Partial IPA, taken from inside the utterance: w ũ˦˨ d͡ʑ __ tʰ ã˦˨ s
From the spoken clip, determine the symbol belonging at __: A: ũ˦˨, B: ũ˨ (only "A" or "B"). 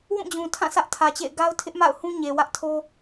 B